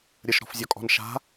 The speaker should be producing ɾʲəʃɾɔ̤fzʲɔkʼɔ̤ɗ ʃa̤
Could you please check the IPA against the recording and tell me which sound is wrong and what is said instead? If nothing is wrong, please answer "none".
ɗ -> n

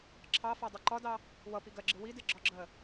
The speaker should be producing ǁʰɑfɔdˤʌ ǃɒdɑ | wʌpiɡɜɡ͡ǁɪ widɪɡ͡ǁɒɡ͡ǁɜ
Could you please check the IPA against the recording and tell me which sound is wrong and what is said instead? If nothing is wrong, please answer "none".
none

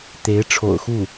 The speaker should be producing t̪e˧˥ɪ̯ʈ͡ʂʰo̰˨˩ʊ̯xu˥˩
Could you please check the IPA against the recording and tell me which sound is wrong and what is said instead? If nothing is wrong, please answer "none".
none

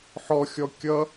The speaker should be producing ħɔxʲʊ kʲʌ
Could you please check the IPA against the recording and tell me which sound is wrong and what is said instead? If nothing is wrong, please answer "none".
ʊ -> ɔ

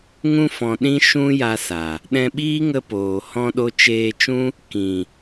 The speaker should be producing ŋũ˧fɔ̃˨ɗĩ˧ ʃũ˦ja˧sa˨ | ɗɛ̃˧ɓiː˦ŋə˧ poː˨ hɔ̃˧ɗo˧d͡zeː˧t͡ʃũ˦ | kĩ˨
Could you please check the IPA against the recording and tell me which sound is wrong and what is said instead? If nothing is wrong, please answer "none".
d͡z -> t͡ʃ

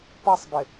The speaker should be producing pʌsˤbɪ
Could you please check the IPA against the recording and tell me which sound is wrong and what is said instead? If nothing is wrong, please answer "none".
none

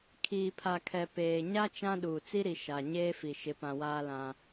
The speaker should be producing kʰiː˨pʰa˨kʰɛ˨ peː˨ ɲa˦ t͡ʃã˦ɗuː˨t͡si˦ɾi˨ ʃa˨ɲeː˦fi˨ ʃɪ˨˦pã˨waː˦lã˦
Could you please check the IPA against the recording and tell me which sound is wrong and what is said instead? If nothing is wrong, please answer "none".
none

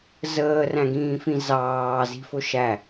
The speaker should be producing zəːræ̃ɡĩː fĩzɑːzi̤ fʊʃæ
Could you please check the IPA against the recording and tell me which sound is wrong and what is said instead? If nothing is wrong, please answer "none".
none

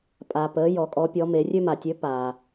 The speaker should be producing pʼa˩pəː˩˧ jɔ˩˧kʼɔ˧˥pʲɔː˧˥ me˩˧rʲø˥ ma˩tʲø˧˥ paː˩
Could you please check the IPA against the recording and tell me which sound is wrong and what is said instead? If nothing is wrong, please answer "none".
ɔː˧˥ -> ɔ˧˥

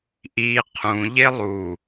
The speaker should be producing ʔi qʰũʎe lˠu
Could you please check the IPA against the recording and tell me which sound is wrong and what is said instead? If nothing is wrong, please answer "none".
none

